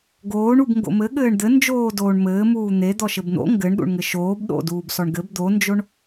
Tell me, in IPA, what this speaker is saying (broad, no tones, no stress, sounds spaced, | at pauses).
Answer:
ɡ oː ɳ u b ŋ ɡ o̰ m ɘ ɠ ɘː ɳ d̪ ɘ n d͡ʒ oː d oː ɳ m ɘː m uː n̪ e d̪ ɔ ʃ ɘ b n̪ o̰ ŋ ɡ ɘ ɳ ɗ ṵ ɳ ŋ ɘ ʃ oː b ɗ o̰ d uː b s ɔ ɳ ɡ ɘ b d̪ o n d͡ʒ o ɳ